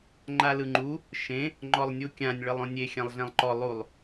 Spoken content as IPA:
ŋ͡ǃ a l ɯ ŋ͡ǃ u | ʃ ẽ | ŋ͡ǃ ɔ lˠ nʲ u kʲ ã nʲ ɭ ɤ lˠ õ nʲ e xʲ ã lˠ ɮ ɛ̃ lˠ ǃ ɔ lˠ u lˠ

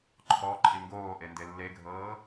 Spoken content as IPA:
ǃʰ ɔ ǃʼ i ŋ ɡ oː ʔ e n d e lː e ɡʱ ɤː

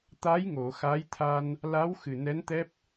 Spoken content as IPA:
t̪ a˧˥ j ŋ o˨˩˨ x a˧˥ j t̪ʰ a˧ n | l a˧˥ w x ɨ˨˩ n ɛ˧˥ n t̪ ɛ˦˥ p̚

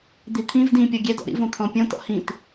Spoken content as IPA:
d̪ i t̪ʰ ĩ v d ĩ pʲ ɔ ɡʲ ɛ d ɔ̰ ɾ ḭ v õ t̪ʰ ɔ̃ pʲ õ t ɔ̰ h ĩ t

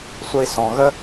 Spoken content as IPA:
sʷ ə˧ i̯ s ɔ̃˨ ɣ ə˦

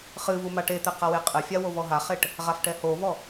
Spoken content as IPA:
χ ɨ v u m a ʈ e t̪ ɛ q a w e qʼ ɘ fʲ a w o v ɔ ɦ a χ e ʈ | ʁ a f ʈ ɛ h o v ɔ

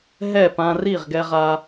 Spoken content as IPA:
ɦ ɛ˥˩ p ã˧ r i˥˩ ʁ ɡ ɛ˧ ʁ a˧

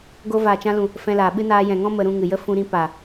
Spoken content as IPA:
ɡ o˧ v aː˨ t͡ʃ ã˧ l ũ˨ | f ɛ̃˧ l aː˨ ɓ ɨ˦ n aː˧ j ɛ̃˨ ŋ ɔ̃˦ m ə˧ ɾ ũ˧ ŋ ɨ˨ j ə˦ f ũ˧ ɾ ĩ˧ p a˨

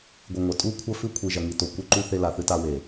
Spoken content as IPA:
ɡʷ ɨ˨ ŋʷ ɐ˨ tʼ u˦˨ kʷʰ ɐ˦ f ʉ˦ kʷʰ i˨ ʒ ɐ˨ ŋ i˨ t o˨ kʷ e˦ ǃ u˦ θ e˦ l a˨ θ ɨ˦ t a˦ w e˨

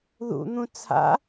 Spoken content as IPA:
ð ṵ n̪ ũ t͡sʰ a̰

